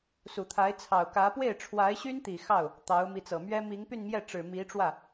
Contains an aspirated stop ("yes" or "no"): yes